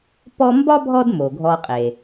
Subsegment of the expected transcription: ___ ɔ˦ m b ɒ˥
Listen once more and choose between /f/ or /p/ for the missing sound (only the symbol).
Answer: p